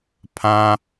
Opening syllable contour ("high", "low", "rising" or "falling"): high